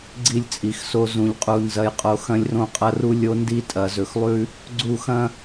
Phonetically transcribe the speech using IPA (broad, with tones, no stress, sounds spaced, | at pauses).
ɡ͡ǀ i˦˨ lʲ t͡sʼ i˨ x s o˦ z ũ˨ ʎ qʼ u˨ n z ɐ˦ j qʼ o˦ x ɐ̃˦ lʲ r õ˦ qʼ ɐ˦ r u˦ lʲ o˦ n d i˦ tʼ ɐ˨ z ɵ˨ x lˠ ʉ˦ | ɡ͡ǀ u˦˨ x ɐ̃˦